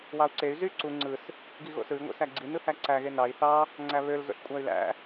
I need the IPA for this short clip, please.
wɑu̯ǀey̯ zy ǀu ŋ͡ǀɯs | ɡiɣo̰sɯi̯ ŋʷḛsæɡ͡ǀi nɯhæǀæ ɣenɑi̯ θɑ | ŋ͡ǀæβøl zo̰ɬkʷʼæy̯læ̰

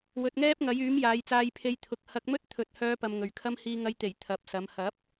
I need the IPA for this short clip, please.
wɵ˨t̚ŋɛː˥p̚ŋɐ˨˥j yː˨˥mjaː˨˧jt͡saː˧j pʰe˧jt̪ʰʊ˨k̚ hɐ˧k̚mɵ˥t̚t̪ʰɵ˨t̚hœː˧ pɐ˧mŋɵ˨ɥkʰɐ˥m hiː˨ŋɐ˨jt̪e˨˩j t̪ʰɐ˨p̚sɐ˨˧m hɐ˨˥p̚

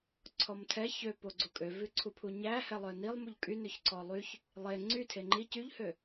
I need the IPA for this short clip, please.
ǀʰɔmtʰɛ çøpo ɡ͡ǀukʼøvʉǀʰu pʰuɲæ hɛlˠœnilˠmuʎ kʼynøç ǀɔlˠyç | lˠe ŋ͡ǀy tʰeŋ͡ǃi cyʎhø

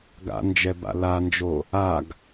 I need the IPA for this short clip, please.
ɡa̰nd͡ʒɛba̰ land͡ʒo | aɡ

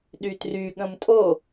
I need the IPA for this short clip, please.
ɗytry ɠə̃mtʼo

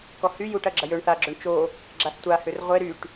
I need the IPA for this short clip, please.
kɔhy juʈ ɐɡ͡ǁɐjøɳ θaɡ͡ǁøɳ t͡ʃo | ɡ͡ǁaθtʷa hʏrʁʷe ɾyʈ

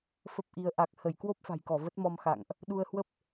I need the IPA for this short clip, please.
fə˦˥p̚ʔi˨˦ə̯ ʔa˨˩k̚hə˧˩j kwo˦˥p̚fa̤˨˩jkɔ˧˩ və˦˥t̚mɔ˧mxa̰˧˨ŋʔ | ɗu˧ə̯hwə˦˥p̚

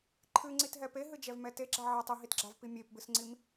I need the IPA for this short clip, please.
ǃʰɨŋ͡ǀitɦɛ peɦɨd͡ʒɛvmɛ teɡ͡ǁa ʕatˤ ɨɦitɡ͡ǁavpi mʲepbɨsŋ͡ǀim

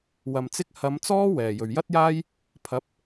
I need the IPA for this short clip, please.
wɐ˨mt͡sɪ˥k̚ hɐ˨˧m t͡sɔː˥wɛː˨˩ jɵ˨˩ɥjɐ˥t̚jaː˥j | pʰɐ˨˥p̚

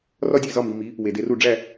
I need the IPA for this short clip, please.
rɒ˥dʲe˥˩zɒ˥˩mi˧ mi˩˥ | we˩de˧ru˥˩ ɖ͡ʐæ˥˩

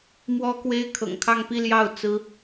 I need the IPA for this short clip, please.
mwɔ˥kwe˥ɪ̯ kʰɤ̰˨˩ŋkʰɑ˥˧ŋ pi˥˧ljɑ˥˩ʊ̯ t͡sɹ̩˥

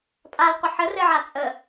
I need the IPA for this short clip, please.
pʼal qʷəħə rɘʕat͡sʼə

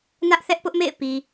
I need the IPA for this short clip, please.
nä˦ʔ θɛ˦ʔpʊ˦ʔmḛ˦˨ɪ̯ pi˨

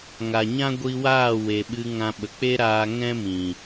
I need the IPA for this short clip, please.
ŋa˨ɲã˦ ɡʷi˧waː˦˨ we˨ɓɨ˧ŋã˧ɓə˨ k͡pe˦ɾaː˧ ŋɛ̃˦mĩ˨

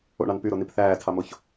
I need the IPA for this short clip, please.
o̰ɳɑn pyɾonip θæːtʰɑmoç

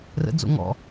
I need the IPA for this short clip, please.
rə̰d͡zo̰ ŋɔ̰

